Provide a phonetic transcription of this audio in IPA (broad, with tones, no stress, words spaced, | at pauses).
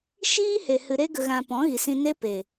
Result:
ʃiː˦he˨ hɨ˨ɾe˧ɡə˨ɣã˨ pɔ̃˨˦ɣi˨sĩ˧ne˦ pe˨